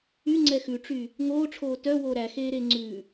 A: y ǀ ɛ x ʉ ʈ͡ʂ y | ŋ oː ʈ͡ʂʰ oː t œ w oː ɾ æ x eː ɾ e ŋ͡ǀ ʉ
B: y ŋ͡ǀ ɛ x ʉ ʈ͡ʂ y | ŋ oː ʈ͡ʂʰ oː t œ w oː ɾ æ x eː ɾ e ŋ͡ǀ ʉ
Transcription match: B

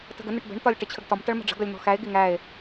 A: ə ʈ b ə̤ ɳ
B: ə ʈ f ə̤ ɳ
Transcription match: A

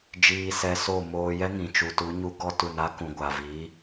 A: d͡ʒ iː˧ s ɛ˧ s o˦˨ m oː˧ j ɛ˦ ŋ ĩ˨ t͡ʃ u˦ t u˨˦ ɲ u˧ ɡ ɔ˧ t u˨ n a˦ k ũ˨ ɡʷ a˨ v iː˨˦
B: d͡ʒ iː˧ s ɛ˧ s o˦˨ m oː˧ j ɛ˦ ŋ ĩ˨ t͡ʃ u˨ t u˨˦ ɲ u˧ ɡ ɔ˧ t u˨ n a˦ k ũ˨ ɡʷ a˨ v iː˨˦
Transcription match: B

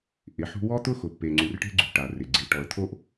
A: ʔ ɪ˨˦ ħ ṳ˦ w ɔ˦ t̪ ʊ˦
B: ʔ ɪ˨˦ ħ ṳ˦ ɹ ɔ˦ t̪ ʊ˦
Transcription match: A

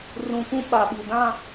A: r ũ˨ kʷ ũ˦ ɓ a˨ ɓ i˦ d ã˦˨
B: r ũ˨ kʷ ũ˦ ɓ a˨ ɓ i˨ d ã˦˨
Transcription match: B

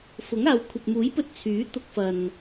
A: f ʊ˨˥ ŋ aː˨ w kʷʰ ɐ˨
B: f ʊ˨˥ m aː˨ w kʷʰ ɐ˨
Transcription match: A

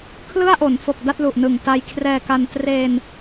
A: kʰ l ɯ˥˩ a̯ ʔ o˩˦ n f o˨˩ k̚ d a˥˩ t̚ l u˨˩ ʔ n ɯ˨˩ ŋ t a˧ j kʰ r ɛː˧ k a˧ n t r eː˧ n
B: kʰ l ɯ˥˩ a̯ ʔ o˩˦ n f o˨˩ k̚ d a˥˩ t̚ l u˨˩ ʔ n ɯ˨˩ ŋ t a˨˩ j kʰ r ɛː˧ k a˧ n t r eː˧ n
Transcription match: A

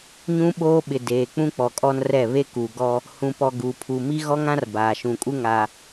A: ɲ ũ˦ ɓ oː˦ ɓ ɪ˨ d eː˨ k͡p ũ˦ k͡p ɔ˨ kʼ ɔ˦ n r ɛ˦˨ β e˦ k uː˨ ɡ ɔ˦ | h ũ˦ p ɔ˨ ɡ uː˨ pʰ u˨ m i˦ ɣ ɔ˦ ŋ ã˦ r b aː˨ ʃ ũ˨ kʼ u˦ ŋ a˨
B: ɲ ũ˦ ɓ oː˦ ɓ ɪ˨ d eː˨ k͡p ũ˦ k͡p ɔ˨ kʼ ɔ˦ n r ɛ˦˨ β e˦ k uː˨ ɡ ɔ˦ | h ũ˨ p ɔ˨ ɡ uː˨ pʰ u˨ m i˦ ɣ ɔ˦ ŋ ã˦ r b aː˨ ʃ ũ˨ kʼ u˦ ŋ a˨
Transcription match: B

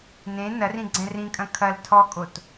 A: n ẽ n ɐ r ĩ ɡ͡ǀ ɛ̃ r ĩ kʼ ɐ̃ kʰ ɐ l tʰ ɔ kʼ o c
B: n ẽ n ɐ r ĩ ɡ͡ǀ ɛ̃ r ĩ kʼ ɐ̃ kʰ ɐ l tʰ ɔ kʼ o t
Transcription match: B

